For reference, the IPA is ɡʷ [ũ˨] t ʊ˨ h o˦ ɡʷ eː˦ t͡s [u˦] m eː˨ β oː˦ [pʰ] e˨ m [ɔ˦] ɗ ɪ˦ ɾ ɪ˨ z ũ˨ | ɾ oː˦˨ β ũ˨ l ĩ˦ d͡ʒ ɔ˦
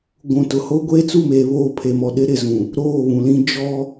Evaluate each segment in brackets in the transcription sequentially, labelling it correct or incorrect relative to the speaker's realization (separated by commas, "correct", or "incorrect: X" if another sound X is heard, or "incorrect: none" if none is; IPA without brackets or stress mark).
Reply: correct, incorrect: u˦˨, correct, incorrect: ɔ˨